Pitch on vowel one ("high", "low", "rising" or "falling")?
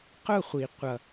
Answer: falling